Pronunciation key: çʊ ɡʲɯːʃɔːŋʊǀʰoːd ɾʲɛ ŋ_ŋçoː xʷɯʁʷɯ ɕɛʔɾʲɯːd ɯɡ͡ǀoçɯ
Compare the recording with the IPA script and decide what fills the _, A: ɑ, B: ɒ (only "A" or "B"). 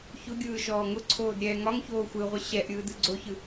B